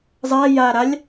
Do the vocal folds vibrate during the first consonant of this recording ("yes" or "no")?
yes